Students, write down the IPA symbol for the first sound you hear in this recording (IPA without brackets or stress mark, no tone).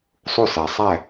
sˤ